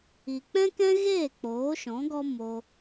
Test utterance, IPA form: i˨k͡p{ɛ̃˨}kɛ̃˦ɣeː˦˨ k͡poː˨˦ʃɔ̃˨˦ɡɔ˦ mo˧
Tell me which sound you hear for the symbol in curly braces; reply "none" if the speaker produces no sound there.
ɛ̃˦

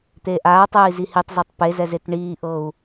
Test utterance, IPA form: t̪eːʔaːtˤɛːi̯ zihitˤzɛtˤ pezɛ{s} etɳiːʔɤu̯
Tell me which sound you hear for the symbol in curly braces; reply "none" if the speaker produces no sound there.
z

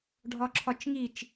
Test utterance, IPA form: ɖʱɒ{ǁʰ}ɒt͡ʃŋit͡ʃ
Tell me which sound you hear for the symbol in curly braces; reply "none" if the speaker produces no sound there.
ǁʰ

